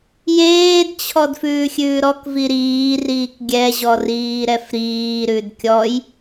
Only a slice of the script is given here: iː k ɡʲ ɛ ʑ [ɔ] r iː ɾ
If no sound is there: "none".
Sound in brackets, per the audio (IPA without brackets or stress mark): ɔ